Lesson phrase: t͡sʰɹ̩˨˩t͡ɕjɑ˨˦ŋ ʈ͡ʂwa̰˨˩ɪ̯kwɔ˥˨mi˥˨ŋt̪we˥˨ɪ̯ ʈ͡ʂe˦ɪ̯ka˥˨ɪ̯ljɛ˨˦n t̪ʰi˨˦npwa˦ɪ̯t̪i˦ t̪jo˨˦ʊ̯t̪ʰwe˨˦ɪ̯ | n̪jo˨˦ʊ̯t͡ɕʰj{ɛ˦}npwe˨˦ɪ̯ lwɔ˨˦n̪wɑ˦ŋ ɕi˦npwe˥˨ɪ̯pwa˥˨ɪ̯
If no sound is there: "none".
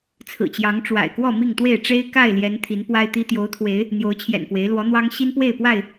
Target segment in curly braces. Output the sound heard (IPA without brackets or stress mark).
ɛ̰˨˩